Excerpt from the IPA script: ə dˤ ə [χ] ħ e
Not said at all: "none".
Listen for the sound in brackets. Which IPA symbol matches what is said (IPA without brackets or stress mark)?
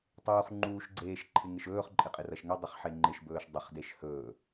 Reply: χ